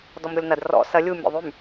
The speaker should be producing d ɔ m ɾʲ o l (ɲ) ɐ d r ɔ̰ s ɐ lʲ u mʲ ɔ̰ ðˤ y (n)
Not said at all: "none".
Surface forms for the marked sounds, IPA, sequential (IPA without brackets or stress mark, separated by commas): n, m